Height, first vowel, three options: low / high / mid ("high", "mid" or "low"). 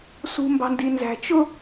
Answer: high